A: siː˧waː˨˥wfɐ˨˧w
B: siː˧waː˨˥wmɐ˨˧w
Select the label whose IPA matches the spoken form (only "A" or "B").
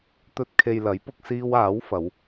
A